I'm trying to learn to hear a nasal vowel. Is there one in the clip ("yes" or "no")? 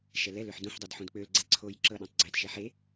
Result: yes